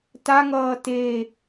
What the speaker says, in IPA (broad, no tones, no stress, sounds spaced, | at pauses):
t a ŋ ʌː t e